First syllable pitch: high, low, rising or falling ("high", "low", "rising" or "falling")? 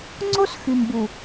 high